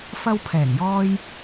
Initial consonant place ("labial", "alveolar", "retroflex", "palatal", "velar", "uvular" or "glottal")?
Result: labial